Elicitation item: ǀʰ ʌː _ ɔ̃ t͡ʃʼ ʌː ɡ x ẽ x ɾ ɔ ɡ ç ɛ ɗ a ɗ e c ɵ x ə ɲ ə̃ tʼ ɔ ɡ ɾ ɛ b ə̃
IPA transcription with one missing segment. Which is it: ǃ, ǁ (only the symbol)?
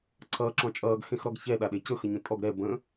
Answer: ǁ